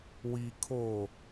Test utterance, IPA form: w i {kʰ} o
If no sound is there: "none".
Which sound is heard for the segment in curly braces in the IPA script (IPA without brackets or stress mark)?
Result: kʰ